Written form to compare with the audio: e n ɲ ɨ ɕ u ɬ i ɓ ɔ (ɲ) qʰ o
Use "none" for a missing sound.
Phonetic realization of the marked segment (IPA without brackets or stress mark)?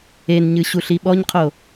ɲ